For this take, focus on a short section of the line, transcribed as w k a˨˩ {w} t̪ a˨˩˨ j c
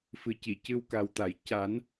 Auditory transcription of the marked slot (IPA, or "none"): w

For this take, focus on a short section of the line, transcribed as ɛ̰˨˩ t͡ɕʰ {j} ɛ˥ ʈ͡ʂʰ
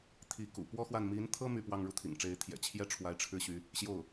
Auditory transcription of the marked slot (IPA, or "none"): j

